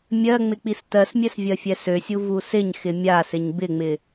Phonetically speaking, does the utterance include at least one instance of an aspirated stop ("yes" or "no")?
no